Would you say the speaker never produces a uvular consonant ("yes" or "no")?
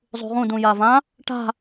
no